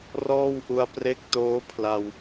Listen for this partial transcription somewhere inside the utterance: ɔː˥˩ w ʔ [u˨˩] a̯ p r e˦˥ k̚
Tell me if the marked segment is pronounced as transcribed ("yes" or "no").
no